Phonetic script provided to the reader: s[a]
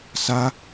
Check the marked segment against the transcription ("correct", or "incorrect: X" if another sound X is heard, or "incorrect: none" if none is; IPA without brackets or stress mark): correct